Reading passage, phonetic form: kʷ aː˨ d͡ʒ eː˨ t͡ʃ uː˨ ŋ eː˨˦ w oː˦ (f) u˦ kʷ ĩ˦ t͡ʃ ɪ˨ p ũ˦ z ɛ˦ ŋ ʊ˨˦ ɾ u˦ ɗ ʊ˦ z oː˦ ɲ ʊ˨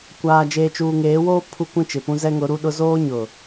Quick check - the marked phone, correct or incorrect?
incorrect: pʰ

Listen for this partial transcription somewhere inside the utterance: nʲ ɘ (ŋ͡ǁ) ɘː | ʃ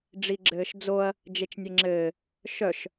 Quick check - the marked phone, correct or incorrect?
correct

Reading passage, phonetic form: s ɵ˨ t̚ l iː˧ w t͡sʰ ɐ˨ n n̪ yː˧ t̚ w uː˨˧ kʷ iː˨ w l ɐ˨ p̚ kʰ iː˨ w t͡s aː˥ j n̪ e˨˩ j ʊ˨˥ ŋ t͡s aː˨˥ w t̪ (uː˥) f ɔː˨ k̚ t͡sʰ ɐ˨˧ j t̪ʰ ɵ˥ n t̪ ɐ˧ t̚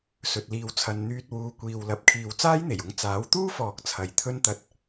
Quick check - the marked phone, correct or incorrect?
correct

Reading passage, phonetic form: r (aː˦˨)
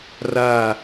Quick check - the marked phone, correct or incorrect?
correct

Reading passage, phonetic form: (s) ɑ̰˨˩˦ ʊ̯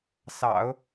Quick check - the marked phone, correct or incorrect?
correct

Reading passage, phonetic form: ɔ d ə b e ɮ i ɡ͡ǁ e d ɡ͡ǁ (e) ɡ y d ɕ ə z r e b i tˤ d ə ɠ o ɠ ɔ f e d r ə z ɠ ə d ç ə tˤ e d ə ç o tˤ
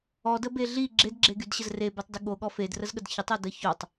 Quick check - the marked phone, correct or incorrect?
correct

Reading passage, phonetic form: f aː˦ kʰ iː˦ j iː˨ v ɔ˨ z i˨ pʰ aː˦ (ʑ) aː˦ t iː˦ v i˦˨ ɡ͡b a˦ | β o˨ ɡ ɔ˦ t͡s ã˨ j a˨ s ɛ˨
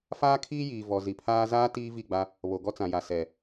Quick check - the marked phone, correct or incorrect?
incorrect: z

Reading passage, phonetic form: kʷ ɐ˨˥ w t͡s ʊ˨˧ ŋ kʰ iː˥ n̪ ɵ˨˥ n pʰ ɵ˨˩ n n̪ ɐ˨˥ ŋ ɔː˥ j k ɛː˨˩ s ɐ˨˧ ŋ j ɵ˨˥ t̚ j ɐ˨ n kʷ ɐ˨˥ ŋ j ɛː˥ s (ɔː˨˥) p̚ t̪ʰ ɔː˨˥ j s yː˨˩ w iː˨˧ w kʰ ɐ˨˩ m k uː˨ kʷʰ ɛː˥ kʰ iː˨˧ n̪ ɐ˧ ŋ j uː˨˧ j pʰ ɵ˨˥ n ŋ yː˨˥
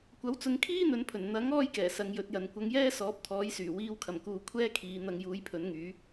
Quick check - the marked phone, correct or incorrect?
correct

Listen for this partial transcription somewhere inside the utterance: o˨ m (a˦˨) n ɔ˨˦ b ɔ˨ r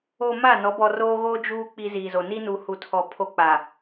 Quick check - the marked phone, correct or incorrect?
correct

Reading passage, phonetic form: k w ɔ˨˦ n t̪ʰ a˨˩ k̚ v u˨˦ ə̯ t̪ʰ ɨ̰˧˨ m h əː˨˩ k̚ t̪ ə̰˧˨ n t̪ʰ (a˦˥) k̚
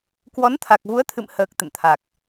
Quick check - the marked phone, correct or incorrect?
incorrect: a˨˩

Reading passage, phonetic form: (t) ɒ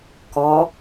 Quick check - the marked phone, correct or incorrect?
incorrect: k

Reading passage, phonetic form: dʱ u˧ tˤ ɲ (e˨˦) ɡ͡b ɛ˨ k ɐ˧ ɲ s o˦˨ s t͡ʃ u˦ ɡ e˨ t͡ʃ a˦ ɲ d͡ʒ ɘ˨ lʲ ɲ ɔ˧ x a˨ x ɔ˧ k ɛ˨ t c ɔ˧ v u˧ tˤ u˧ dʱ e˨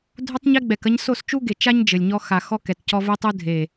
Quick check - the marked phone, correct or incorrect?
incorrect: e˧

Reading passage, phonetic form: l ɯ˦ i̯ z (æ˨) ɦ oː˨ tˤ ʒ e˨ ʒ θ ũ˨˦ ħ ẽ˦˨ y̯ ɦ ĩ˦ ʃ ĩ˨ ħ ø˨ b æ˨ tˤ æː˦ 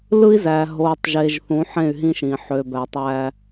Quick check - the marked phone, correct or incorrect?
correct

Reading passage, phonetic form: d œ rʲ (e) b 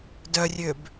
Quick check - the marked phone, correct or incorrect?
incorrect: ø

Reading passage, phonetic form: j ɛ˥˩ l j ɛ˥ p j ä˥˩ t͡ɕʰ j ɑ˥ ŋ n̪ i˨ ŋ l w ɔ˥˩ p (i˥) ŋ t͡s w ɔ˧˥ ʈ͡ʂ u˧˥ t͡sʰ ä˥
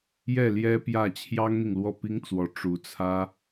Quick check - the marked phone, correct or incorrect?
correct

